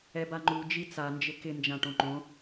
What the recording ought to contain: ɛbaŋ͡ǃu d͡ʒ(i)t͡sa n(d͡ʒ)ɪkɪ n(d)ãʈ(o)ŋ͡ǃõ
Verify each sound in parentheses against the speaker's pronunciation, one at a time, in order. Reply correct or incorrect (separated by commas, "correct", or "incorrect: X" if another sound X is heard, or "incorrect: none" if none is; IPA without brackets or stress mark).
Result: correct, correct, incorrect: d͡ʒ, incorrect: õ